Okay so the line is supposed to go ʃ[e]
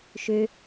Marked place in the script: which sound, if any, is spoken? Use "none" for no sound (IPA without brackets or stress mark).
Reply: ø